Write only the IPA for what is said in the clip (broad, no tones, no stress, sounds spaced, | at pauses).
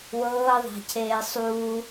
w ɤː ðˤ a̤ cʰ eː sˤ uː